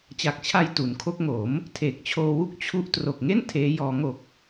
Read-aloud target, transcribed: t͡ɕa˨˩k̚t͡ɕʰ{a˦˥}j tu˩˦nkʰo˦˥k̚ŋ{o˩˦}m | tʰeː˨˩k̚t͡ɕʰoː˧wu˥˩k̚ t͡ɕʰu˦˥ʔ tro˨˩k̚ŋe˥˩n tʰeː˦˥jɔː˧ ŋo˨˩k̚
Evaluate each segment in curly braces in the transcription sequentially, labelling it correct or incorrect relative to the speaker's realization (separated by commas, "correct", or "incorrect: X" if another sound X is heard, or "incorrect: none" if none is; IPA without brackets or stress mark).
incorrect: a˧, correct